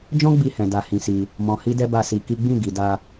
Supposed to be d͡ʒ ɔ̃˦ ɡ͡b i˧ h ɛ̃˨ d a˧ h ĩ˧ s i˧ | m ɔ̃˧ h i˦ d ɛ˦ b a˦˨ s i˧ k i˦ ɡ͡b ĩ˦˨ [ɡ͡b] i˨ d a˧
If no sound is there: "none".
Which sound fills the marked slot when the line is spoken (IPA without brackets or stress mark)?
ɡ